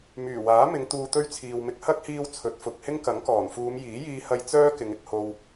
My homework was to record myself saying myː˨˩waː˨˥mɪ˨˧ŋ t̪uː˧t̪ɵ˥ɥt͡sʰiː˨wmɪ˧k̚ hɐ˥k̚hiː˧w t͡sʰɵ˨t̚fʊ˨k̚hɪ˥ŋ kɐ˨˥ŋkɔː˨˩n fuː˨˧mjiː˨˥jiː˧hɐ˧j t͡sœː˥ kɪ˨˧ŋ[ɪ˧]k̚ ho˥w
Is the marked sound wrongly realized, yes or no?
yes